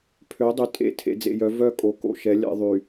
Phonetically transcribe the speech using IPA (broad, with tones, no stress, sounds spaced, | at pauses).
pʰ ø˨˦ dˤ y˨ tʼ ḛ˦ tʰ ḛ˨ d͡z ḛ˨ j œ˨˦ v œ˦˨ kʼ o˨ k o̰˨ ʃ ɛ˨˦ lʲ ɛ̰˨ ðˤ y˨